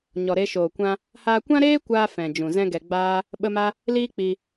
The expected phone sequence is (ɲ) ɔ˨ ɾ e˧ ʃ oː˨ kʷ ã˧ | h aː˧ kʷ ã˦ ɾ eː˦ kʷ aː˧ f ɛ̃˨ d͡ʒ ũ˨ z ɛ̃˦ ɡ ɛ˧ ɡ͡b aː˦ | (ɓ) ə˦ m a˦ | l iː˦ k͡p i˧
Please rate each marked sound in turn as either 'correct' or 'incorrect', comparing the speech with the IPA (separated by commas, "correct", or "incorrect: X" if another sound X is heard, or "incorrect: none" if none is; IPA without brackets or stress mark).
correct, correct